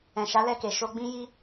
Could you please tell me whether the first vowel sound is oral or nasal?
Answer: nasal